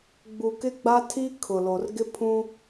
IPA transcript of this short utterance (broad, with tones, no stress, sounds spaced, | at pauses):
ɡ͡b u˨ k ɪ˦ ɡ͡b a˦ tʰ i˦ kʰ ʊ˨ l o˨ r ɡ ɪ˦ pʰ ũ˦